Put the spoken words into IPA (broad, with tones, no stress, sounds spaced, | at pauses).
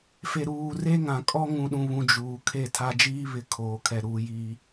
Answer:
f e˨ ɾ uː˨ r e˦ ŋ ã˨ kʼ ɔ˦ ŋ ũ˨ ɗ ũ˨ β ũ˨ d͡ʒ uː˨ kʰ e˦˨ tʰ a˦ d͡ʒ iː˦ β ɪ˨ kʰ oː˨ kʰ ɛ˨ ɾ uː˨ j iː˨